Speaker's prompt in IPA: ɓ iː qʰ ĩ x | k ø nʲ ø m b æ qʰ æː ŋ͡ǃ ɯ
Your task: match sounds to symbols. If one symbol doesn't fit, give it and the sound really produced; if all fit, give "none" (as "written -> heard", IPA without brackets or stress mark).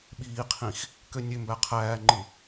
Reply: none